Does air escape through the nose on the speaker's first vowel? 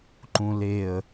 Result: yes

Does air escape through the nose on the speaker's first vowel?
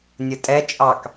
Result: no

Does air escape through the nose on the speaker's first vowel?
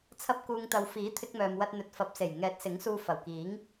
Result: no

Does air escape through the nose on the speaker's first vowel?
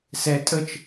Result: no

